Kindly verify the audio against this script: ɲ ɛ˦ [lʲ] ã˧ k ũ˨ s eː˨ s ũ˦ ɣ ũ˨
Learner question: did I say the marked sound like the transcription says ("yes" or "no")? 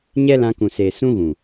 no